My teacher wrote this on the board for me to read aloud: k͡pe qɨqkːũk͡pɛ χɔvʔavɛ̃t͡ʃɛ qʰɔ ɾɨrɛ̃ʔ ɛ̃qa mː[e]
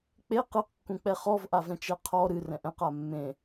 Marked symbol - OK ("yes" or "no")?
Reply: no